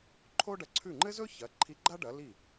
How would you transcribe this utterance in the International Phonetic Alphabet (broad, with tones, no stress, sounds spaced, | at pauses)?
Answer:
ǃʰ o˥ ɖ ɐ˩˥ ǀʰ ʉ˥˩ ŋ͡ǃ ɘ˥ z ɵ˥ ç ɐ˩˥ ǃʰ i˧˥ ɡ͡ǃ a˥ ɖ ɐ˩˥ l i˥˩